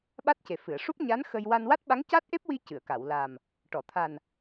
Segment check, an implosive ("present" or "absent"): present